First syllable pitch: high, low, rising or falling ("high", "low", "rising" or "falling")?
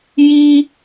high